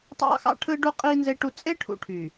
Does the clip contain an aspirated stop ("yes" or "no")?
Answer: yes